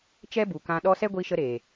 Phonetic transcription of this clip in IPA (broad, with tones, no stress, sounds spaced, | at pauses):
t͡ʃ ɛ˦ b u˨ k ã˧ ɗ ɔ˦ s ɛ˦ ɡʷ i˧ ʃ ə˧ ɾ eː˨